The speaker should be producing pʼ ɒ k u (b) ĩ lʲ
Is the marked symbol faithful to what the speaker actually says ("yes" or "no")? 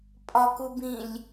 yes